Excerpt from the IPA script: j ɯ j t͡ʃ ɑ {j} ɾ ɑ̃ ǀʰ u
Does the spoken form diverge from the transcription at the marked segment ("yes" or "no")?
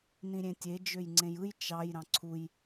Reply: no